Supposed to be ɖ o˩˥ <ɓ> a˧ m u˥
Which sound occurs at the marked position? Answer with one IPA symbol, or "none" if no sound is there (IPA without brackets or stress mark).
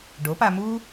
p